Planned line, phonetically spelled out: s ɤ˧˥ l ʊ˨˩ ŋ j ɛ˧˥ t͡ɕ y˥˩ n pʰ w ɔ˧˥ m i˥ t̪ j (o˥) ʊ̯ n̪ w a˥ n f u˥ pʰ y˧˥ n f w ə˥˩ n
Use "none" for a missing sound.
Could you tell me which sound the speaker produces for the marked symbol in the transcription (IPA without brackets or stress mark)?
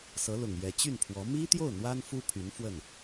o˥˩